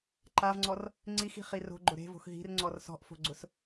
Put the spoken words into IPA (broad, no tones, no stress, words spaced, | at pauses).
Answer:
ǃavŋ͡ǀɔr | ŋ͡ǀixi̤χi ro̤ɡ͡ǃʊ ɾe̤vo̤x ɦi̤rŋ͡ǀɔr sɔ̤ʔfo̤ɡ͡ǀʊs